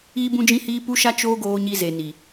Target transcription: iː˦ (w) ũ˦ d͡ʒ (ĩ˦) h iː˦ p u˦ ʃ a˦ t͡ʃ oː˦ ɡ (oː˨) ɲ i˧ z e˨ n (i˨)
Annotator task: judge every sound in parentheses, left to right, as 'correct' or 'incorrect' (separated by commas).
incorrect, correct, incorrect, correct